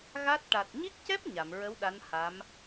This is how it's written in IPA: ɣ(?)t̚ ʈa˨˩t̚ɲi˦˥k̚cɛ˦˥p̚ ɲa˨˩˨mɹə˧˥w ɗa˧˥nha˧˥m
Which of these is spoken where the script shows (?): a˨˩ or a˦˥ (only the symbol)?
a˦˥